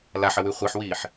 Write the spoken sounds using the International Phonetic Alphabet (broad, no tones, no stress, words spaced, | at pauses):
laħəwy χʷiħwiːħ